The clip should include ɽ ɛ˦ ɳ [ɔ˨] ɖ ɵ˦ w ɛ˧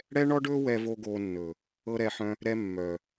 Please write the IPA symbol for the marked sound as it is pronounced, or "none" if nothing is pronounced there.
ɔ˦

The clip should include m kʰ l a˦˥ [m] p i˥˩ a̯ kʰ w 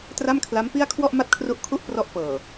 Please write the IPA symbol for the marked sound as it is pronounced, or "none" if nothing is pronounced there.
m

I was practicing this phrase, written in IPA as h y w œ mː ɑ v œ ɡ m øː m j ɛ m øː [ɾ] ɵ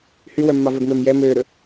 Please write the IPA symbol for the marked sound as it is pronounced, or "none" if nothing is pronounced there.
ɾ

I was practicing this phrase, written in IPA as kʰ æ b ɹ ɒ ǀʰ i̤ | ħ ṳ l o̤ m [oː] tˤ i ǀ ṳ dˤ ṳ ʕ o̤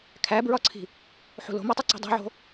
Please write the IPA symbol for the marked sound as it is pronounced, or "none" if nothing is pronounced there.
o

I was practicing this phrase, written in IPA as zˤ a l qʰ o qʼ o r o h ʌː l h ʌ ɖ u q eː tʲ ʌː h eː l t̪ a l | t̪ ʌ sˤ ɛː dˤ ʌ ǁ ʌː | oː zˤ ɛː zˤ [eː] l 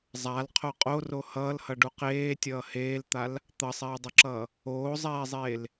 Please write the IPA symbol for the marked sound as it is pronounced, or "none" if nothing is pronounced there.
eː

